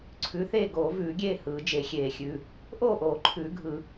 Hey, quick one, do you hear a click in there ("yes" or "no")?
yes